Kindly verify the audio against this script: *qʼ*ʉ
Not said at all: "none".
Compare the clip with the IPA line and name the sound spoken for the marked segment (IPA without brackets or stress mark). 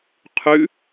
qʰ